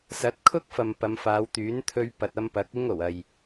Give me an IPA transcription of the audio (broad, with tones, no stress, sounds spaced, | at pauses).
s ɐ˨˥ t̚ kʰ ʊ˥ k̚ f ɐ˨ m p ɐ˨˧ m f aː˨˧ w t̪ yː˨˥ n t̪ʰ ɵ˧ ɥ p ɐ˨ t̚ ɐ˧ m p ɐ˨˥ k̚ ɪ˥ ŋ o˨˩ w ɐ˨ j